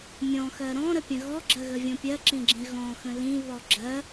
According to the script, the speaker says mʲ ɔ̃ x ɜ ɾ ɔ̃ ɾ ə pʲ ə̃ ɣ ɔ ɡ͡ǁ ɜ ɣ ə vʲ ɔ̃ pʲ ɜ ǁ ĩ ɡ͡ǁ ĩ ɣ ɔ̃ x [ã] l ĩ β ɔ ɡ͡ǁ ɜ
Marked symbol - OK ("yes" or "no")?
no